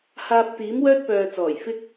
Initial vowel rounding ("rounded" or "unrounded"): unrounded